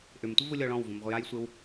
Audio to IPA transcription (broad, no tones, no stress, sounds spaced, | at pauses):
ʔ ʏ m tʷ ə v u lʲ ɔ ɭ ɔ̃ w v ũ m ʁʷ ə j a j sʷ e w